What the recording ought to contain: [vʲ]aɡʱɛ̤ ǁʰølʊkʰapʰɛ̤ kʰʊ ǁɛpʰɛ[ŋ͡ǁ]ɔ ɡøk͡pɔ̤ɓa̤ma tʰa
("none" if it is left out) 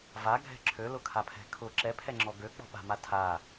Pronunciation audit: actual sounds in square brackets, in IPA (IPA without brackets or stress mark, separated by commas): v, ŋ͡ǁ